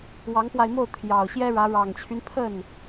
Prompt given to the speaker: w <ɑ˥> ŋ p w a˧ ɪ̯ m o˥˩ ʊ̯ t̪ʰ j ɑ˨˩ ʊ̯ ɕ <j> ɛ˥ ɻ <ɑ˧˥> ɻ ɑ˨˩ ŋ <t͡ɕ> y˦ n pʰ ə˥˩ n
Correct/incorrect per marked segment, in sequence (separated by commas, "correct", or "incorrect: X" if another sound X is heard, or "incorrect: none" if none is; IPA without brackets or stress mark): incorrect: ɑ˧˥, correct, incorrect: ä˧˥, incorrect: t͡ɕʰ